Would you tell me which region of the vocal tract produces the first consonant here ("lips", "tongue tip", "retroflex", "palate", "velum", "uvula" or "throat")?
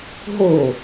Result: throat